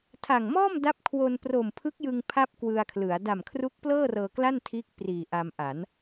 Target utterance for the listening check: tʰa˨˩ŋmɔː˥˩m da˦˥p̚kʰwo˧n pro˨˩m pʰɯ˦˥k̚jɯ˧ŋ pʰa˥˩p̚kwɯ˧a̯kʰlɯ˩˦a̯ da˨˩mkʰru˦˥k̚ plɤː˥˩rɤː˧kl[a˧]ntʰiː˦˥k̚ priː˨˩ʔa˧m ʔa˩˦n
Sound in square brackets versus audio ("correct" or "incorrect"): incorrect